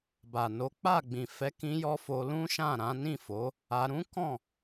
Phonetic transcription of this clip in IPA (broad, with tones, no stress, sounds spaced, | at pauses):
b a˨ n o˨˦ k͡p a˦˨ ɡ͡b ĩ˨ f ɛ˨˦ k ĩ˧ j ɔ˧ f o˧ l ũ˦ ʃ ã˦˨ ɾ ã˨˦ n ĩ˦˨ f o˨˦ | a˧ ɾ ũ˦ k ɔ̃˦˨